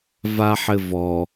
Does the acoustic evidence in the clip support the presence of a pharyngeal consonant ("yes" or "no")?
yes